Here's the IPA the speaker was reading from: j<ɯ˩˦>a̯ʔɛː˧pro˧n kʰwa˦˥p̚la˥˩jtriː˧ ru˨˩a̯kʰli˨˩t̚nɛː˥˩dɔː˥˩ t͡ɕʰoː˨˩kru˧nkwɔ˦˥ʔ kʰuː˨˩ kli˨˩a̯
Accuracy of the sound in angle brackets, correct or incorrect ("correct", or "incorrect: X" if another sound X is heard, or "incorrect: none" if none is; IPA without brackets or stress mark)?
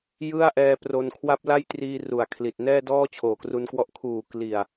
incorrect: ɯ˥˩